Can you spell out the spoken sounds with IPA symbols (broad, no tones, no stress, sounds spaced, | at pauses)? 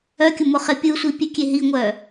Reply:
œ kʲ ʊ m ʊ χ e pʲ ɯ sʷ i pʲ e kʲ e ɦ i ŋʷ œ